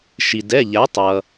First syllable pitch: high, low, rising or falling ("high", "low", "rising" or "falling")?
low